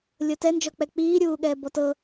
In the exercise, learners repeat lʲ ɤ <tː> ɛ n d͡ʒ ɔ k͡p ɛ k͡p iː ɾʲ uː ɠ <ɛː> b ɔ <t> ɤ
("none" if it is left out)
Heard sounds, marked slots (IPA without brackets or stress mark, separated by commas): t, ɛː, t